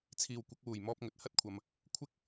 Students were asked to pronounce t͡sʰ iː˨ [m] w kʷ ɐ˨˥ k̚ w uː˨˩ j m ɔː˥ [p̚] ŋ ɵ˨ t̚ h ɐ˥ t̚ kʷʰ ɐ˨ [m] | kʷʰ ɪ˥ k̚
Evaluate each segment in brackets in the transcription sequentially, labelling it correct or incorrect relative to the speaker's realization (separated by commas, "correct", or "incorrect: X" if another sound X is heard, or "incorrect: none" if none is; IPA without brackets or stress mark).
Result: incorrect: none, correct, correct